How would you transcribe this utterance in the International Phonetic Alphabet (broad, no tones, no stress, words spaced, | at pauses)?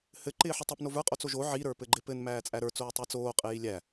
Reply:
hɘ ǃɪːħətˤəpnov ə˞qʼot͡soʒ o ʕiɾə˞pɘ ɡ͡ǃɪpɘn mæːt͡sʼæɾə˞t͡soː tˤə˞t͡soːqʼɪji lʲæ